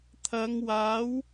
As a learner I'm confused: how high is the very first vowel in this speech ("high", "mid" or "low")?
low